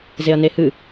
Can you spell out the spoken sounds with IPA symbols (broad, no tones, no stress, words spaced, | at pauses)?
zeɐ̯nehɨ